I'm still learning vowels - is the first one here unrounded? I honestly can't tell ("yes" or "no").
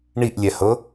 yes